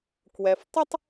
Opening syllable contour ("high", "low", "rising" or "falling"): low